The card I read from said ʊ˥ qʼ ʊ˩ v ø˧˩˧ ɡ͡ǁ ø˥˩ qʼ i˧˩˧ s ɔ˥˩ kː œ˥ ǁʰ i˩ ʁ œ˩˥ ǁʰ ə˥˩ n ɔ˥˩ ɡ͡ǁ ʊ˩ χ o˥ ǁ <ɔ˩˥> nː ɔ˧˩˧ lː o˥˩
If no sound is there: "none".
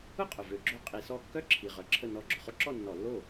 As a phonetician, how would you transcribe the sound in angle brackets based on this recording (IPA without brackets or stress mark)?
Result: ɔ˥˩